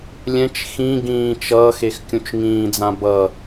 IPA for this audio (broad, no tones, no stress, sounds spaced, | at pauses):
lʲ ɛ̃ t͡ʃ x ĩ ɡ ĩː t͡ʃ ʌː x e x kʲ ũ t͡ʃ ŋ ĩː d͡z ã b ʌ